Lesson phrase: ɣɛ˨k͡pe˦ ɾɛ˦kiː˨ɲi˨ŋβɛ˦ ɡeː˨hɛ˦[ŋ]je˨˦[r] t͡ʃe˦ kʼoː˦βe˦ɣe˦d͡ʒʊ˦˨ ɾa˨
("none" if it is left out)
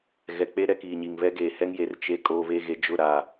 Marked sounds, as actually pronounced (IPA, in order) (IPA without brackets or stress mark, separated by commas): ŋ, r